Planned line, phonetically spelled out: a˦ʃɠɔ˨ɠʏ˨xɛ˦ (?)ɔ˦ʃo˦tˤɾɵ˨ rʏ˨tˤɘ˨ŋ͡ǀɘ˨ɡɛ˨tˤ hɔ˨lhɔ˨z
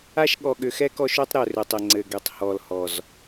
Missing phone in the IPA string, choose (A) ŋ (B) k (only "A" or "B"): B